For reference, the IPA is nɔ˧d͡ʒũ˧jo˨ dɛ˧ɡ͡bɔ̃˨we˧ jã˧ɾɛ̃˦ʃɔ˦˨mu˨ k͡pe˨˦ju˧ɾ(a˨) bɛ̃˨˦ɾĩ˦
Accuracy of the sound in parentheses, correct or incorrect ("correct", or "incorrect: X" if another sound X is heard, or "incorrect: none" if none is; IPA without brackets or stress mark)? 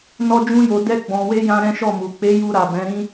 correct